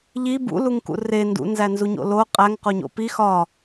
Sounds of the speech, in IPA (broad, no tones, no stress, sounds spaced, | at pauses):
ʎ i b ṵ l u ŋ k ṵ r e n d ṵ n z æ n z u ɲ o̰ l o qʼ æ ŋ q o ɲ o̰ p i x ɒ